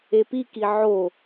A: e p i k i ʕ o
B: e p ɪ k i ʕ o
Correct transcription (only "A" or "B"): A